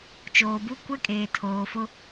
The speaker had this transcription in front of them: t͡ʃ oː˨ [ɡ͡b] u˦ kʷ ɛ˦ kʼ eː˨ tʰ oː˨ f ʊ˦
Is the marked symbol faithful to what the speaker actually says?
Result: no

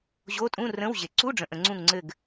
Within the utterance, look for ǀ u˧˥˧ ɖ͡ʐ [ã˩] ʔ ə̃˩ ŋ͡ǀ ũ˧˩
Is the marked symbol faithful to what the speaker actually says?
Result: no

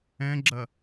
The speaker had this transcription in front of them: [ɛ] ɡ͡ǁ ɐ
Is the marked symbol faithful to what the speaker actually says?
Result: no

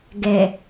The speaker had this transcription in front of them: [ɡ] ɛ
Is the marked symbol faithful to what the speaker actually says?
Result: yes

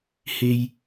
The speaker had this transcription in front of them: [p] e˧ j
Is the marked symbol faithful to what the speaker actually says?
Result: no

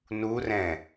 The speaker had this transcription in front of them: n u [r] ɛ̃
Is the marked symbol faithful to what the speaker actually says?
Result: yes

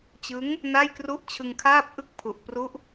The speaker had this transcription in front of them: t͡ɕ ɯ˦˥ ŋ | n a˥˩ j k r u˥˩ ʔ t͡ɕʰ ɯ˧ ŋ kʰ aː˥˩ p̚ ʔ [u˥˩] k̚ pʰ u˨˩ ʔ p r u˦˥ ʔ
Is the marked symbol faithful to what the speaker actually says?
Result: no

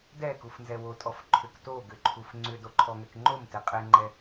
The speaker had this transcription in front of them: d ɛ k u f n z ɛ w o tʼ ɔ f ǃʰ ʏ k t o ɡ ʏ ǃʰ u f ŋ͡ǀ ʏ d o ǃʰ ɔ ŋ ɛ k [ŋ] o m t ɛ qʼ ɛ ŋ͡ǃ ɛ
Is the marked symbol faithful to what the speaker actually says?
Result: no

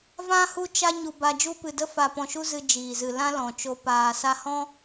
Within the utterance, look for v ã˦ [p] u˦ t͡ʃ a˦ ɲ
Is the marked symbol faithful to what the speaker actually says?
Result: no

